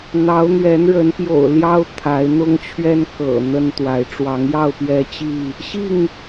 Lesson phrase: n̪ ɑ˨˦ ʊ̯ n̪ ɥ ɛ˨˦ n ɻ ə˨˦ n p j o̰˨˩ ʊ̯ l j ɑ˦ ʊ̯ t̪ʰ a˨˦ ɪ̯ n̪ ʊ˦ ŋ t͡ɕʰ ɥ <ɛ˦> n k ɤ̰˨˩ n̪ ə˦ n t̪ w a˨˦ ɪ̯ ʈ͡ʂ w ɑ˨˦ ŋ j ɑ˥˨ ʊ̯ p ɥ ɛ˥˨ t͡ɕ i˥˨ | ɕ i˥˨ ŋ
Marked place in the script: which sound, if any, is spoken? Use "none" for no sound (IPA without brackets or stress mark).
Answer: ɛ˦